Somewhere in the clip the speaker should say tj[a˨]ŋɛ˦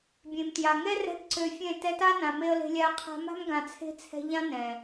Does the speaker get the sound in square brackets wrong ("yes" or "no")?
no